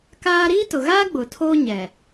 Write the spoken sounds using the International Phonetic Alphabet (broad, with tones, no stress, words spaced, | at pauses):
kaː˦ ɾiː˦tʊ˨ɣaː˦ ɡ͡bʊ˨tʰoː˦ ɲɛ˨